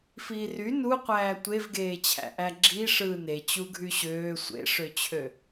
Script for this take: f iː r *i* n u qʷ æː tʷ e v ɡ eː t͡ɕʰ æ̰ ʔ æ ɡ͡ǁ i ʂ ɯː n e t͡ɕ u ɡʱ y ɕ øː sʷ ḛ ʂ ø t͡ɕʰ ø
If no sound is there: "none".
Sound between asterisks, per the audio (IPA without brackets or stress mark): y